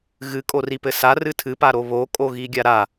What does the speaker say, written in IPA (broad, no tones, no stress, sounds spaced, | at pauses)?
ɣ ɨ kʼ o r i p ɘ s a r ɨ tʰ ɨ p a ɾ o β o kʼ o ɣ i ɡʲ a ɾ a